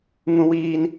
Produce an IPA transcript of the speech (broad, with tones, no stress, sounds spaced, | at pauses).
ŋ ũ˦ w iː˦ n